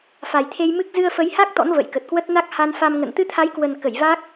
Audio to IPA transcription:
fa˨˩jt̪ʰe˧j mɨ˦˥k̚ zɨ˧ə̯fə˨˦jha˦˥k̚ t̪ɔ̰˧˥nvə̰˧˨jkə˨˩t̚kwə˦˥t̚ na˦˥k̚ha˧nfa˧mŋə̰˧˨n t̪ɨ˧t̪ʰa˨˦jkwə˨˩n kə˧˩jva˦˥k̚

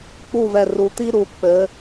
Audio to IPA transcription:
k͡pu˥˨vɛ˧˩ ru˩˧t̪i˥ ɾu˩˧ k͡pɘ˩˧

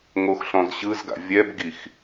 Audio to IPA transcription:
ŋoxɬɔ̃zɕɯzɡa̰ vʲɛbɡix

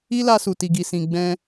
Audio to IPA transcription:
i˦la˧su˨ ti˨ɡi˨sĩ˨ɡ͡bɛ̃˧

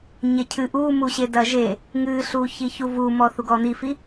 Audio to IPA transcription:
ɲecʰɨ ʔumuɕe dɐʒe | ŋɨɬu çiçuvumɔ θuɡɔn̪ifi

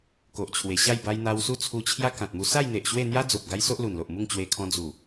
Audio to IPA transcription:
ko˨ʔt͡ɕʰwe˨˩ɕa˥˧j ba˧jn̪a˧wsu˦ t͡sʰu˧t͡ɕʰja˦kã˨t̚ mu˧sa˥˧jn̪e˨ʔ ɕwe˥˧ n̪ja˦d͡zo˨p̚ ɡa˦jso˦ʔlu˨˩nlo˨ʔ mu˥˧ŋt͡ɕwe˧kʰɔ̃˧ d͡zu˨˩

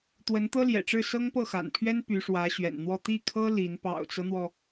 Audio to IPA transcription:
t̪wə˧˥nt̪ɤ˥ljɛ̰˨˩ʈ͡ʂɻ̩˥˩ sɤ˥ŋpɤ˥˩xa̰˨˩npʰɥɛ˥n py˧˥ʂwä˧˥ɕɥɛ̰˨˩nn̪wɔ˥˧ t̪i˥˩kʰɤ˥ li˧˥n pɑ̰˨˩ʊ̯t͡sɤ˦n̪wɔ˩

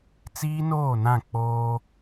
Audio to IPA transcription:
t͡siː˦noː˦˨nã˦˨ k͡poː˦

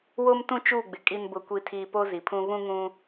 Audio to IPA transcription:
wo˦mtũ˦t͡ʃuː˦˨ɡ͡bɪ˨ kʼi˨nbʊ˨kʷi˨tʰiː˨ po˦zi˨pʰũ˦ βũ˦ ŋũ˦

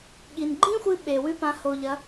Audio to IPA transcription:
ɠi˩nɡ͡ǃĩ˥xʷɨ˧ ɓe˩ wʉ˧pã˩˧ho˩ʎɐ˩˧

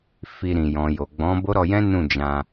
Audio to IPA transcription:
fi˧ɾĩ˨ jɔ̃˨jo˨ ɡ͡bɔ̃˨˦ bo˦ɾɔ˧jɛ̃˦ nũ˦˨d͡ʒã˧

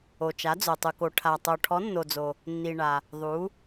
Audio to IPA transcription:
o˩t͡ʃa˩˧d͡zo˩ tˤu˩ko˩ ʈʰa˩tˤo˩ ʈʰɔ˩˧nːo˩d͡zo˩ | nːi˩ɳa˩ | ðˤu˩˧

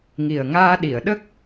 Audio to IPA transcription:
ŋi˨˩ə̯ŋaː˧ɗi˨˩˨ə̯ɗə˦˥k̚

